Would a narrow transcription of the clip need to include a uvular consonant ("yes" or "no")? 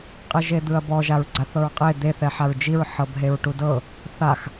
yes